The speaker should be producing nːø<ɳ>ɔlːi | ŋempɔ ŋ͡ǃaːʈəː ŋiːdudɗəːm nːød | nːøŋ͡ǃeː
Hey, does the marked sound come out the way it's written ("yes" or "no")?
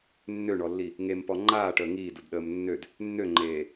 yes